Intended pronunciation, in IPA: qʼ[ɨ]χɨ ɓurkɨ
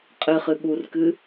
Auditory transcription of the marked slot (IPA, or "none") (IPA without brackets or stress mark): ɨ